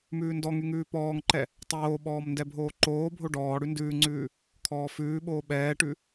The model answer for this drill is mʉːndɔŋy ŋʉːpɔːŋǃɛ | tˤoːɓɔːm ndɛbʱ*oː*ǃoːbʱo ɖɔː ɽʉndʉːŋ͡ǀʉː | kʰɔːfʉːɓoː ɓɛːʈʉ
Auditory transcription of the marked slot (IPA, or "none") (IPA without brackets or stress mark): oː